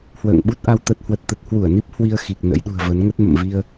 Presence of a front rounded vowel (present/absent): absent